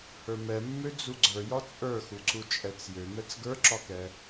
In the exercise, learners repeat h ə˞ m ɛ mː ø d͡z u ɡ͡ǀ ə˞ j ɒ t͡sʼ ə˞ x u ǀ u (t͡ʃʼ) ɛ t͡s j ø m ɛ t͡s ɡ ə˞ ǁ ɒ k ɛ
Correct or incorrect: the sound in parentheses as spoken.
correct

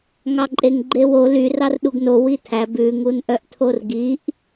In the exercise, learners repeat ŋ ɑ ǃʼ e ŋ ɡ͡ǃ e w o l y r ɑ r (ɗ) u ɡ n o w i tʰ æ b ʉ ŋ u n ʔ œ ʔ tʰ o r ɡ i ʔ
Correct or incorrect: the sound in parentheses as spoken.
correct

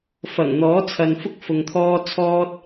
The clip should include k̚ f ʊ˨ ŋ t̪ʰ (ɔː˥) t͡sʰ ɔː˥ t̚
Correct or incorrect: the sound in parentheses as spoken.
correct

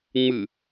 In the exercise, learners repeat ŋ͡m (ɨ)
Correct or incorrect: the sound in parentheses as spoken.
correct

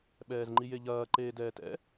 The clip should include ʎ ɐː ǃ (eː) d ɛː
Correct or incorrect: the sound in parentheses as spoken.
correct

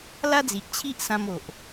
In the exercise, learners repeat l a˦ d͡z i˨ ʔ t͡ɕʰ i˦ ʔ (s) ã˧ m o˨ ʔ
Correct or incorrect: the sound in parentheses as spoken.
correct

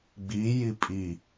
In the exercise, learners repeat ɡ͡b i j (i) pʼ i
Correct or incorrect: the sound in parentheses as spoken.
correct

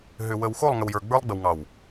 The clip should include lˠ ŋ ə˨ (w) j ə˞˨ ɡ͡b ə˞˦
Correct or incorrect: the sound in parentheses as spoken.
correct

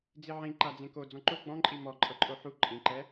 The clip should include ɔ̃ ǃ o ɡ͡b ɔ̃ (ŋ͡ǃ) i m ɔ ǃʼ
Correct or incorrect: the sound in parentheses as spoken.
incorrect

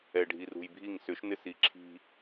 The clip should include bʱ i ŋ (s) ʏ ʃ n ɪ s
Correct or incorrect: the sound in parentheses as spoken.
correct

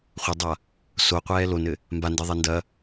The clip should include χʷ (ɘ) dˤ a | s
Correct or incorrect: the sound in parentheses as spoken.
correct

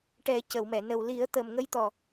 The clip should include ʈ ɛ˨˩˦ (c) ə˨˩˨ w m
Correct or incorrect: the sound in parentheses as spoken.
correct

